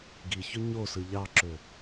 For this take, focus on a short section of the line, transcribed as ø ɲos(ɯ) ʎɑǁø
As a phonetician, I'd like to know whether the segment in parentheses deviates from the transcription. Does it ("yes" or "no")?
no